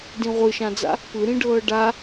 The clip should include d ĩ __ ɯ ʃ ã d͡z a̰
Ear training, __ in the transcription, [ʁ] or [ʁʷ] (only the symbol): ʁʷ